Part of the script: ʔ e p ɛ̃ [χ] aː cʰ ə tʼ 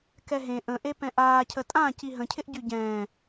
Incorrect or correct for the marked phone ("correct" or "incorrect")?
incorrect